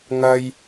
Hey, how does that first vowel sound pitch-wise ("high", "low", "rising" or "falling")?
high